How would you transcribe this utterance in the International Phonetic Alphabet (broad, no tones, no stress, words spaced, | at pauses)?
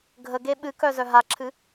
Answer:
ɡʱəɡe ɓɨkœ zœɦaǁʰɨ